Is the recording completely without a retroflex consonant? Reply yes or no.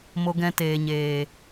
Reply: yes